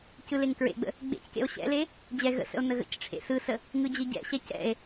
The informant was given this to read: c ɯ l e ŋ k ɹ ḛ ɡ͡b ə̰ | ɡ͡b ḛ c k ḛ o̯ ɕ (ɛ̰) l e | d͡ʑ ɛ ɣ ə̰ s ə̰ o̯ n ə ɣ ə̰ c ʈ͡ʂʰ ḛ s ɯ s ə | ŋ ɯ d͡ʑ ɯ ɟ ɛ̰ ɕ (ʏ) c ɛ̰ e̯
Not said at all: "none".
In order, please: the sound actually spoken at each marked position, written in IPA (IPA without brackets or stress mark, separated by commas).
ɛ̰, ɛ